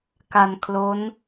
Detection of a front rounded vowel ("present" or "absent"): absent